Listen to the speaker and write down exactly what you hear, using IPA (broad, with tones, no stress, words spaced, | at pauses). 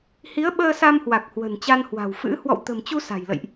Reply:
hi˨˦ə̯ɓəː˧sa˧m hwa˨˩k̚hwə̤˨˩nt͡ɕa˧nhwa̤˨˩w fɨ̰˧˥ hwɔ̰˧˨wt̪ə̤˨˩mt͡ɕu˧ sa̤˨˩jlə̰˧˨jʔ